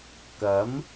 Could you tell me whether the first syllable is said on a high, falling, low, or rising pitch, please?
rising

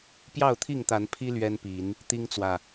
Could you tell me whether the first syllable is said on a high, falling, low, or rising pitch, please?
falling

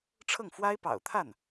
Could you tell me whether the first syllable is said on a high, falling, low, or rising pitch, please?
falling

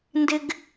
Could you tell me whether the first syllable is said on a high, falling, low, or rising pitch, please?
high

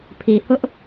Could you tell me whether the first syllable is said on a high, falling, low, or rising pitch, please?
low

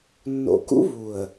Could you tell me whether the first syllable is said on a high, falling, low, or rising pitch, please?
low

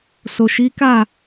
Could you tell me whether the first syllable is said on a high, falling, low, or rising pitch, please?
low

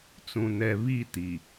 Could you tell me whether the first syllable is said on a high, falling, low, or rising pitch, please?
low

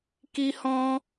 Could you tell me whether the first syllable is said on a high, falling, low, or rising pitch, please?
high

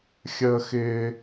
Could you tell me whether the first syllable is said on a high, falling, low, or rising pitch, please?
high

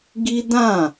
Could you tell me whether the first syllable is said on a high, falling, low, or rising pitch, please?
high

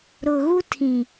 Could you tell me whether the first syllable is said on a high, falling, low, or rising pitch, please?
low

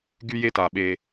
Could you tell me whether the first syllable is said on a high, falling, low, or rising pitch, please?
high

